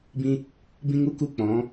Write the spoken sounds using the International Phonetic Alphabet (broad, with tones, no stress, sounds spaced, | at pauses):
b ĩ˧ | b ĩ˦ ŋ u˦ k u˦˨ k͡p ɔ̃˨˦